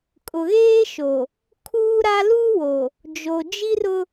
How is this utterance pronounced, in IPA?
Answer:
kʼ ʊ˨ ɣ eː˦ ʃ o˨ | kʰ uː˦ ɾ a˦ l u˦ w o˨ | d͡ʒ o˨ d͡ʒ i˦ r ʊ˦

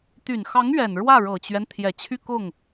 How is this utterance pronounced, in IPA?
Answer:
t̪ y˨˩ n x ɑ˧˥ ŋ ɥ ɛ˨˩ n ɻ w ä˥˩ ɻ ɤ˨˩ t͡ɕ ɥ ɛ˦ n t̪ʰ j ɛ˨˩ t͡ɕʰ y˥˧ k ʊ˥˩ ŋ

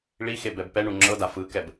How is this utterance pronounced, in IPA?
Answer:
ɭ i x e b ɛ b p ɛ ɳ u ŋ͡ǁ ɤ d a f ɯ k ɛ b

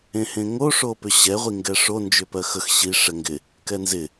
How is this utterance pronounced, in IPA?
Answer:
ẽ h ẽ ŋ o ʂ o p ʏ ɕ ɛ ʁʷ i ŋ ɡ ɛ ʂ o n d͡ʒ ʏ p ɜ x ə x ɕ i ʂ ɛ ŋ ɡ ɪ | k ɛ n z ɪ

